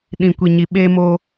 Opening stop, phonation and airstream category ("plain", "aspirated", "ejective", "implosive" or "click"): implosive